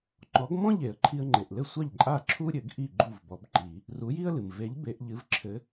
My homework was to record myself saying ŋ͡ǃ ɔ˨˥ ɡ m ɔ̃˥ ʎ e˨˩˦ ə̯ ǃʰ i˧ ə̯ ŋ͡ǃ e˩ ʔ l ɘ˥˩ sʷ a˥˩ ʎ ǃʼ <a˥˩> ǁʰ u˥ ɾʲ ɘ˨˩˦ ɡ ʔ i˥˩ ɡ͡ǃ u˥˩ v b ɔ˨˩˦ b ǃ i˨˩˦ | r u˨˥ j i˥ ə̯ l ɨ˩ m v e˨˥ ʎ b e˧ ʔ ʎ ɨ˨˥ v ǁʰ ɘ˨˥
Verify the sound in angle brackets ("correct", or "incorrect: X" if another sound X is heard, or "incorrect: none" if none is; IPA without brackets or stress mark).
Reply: correct